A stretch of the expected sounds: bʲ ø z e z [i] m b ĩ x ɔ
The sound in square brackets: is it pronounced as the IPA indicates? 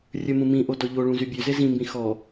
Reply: no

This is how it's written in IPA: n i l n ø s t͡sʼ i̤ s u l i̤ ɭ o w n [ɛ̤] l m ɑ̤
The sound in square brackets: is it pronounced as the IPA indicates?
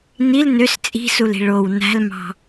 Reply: no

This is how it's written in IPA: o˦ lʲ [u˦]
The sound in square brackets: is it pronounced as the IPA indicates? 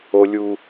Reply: yes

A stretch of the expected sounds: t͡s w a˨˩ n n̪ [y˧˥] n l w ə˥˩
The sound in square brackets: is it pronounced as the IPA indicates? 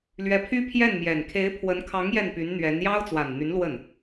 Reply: yes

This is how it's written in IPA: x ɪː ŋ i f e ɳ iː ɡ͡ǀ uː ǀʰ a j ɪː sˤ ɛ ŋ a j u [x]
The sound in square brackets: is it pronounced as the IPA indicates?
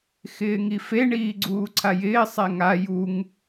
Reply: no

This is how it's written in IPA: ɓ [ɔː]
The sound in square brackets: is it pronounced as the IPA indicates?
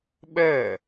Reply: no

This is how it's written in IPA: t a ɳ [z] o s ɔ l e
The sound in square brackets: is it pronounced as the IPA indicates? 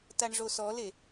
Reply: no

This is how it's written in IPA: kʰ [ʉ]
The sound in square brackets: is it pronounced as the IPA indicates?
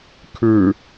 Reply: yes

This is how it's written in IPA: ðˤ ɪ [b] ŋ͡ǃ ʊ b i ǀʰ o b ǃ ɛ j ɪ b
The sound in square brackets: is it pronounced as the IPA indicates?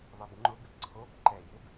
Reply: yes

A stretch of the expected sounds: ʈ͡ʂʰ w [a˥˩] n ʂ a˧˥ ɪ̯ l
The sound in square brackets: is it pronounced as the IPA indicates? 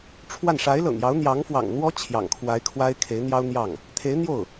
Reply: yes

